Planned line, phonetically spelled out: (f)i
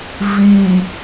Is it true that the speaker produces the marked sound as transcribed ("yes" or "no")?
no